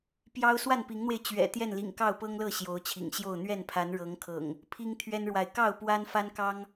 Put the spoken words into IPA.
p j ɑ˦ ʊ̯ s w a˥˨ n p i˨˦ ŋ n̪ w e˧ ɪ̯ t͡ɕ ɥ ɛ̰˨˩ t̪ j ɛ˥˨ n l ḭ˨˩ ŋ k ɑ˥˨ ʊ̯ p ɤ˦ ŋ l ɤ˥˨ ɕ j o˨˦ ʊ̯ t͡ɕʰ ḭ˨˩ ŋ ɕ j o˥˨ ʊ̯ n̪ ɥ ɛ˥˨ n pʰ a˨˦ n ɻ ɤ˨˦ ŋ kʰ ɤ̰˨˩ ŋ | pʰ i˦ ŋ t̪ʰ ɥ ɛ˦ n ɻ w a˨ ɪ̯ k ɑ˥˨ ʊ̯ p w a˦ n f a˦ n k ɑ˦ ŋ

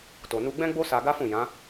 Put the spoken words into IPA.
t o˨ n u˧ ɡ͡b ɛ̃˦ ɡ͡b o˦ s a˧ ɡ a˦ f ũ˦˨ j ã˨˦

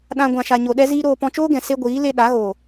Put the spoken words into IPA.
ɗ ã˧ ɡʷ ã˨ ʃ a˨ ɲ o˨ ɗ ɛ˦ z iː˦ ɾ oː˧ p ɔ̃˧ t͡ʃ oː˦ ɡ ɛ̃˨ s e˦ ɡʷ iː˨˦ l e˧ ɗ a˨˦ ɣ o˨

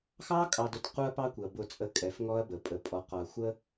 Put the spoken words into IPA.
x ɑ˦ kʼ ɑ˨ d ʊ˨ t q u˦ ɐ̯ p ɑ˦ kʷ ɪ˨ ɐ̯ b ʊ˨ t͡sʼ ə˨ kʼ ɛ˨ f ŋ ɔ˦ ɐ̯ b ə˨ pʼ ə˨ pʼ ɔ˨ q ɔ˨ ɐ̯ xʷ ə˦

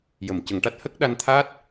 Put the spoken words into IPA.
j ə˨˩˨ m c ə˨˩˦ ŋ ʈ a˦˥ t̚ h ə˦˥ k̚ ɗ a˧ n t̪ʰ aː˦˥ t̚

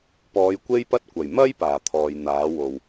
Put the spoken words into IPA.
p ɔː˨˧ j kʷ e˥ j p ɐ˥ t̚ kʷ ɐ˨˩ j m ɐ˥ j p aː˨˩ t̪ʰ ɔː˨ j n̪ aː˨˥ w o˨˩ w

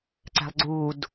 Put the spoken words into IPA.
ǀ æ̤ lˠ ɡ͡ǀ uː d

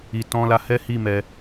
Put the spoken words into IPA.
i˨ t ɔ̃˧ l a˧ h ɛ˦ h i˦˨ m ɛ˧

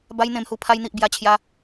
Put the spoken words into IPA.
b a˧ j n̪ ẽ˨˩ m h u˨˩ pʰ a˧ j n̪ i˨ ʔ b j a˧ t͡ɕʰ j a˧

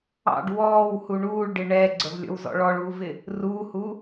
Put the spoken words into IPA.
ɑ̰ ɖ w ɔː w h u ɳ uː ɭ ɖ ɪ ɳ ɛː ɡ͡ǀ ə v lʲ ɔ̰ w z ɔ̰ ɭ ɔ ɭ uː v ɪ | r uː h u

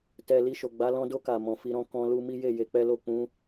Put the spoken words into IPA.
t ɛ˧ l i˧ ʃ o˨ ɡ͡b a˨˦ l ɔ̃˧ d o˧ k a˨ m ɔ̃˨ f i˧ ɾ ɔ̃˧ k ɔ̃˧ l u˧ m i˦ j e˦˨ j e˨˦ k͡p ɛ˦ l o˦˨ k͡p ũ˨˦

